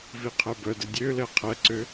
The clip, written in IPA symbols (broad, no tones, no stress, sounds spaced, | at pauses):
v i qʰ ɛ b œ d ɛ dʲ ø l ɛ qʰ ɛ ǀ ø